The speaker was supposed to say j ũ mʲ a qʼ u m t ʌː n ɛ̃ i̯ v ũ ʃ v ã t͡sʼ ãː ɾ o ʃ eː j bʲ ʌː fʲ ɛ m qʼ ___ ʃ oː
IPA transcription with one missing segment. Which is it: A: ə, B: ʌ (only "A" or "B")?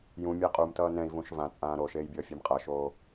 B